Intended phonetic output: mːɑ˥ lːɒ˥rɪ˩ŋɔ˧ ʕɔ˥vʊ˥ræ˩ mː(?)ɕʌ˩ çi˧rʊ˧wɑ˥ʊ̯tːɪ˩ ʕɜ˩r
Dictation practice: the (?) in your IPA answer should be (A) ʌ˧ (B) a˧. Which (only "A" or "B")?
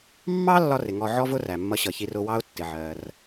A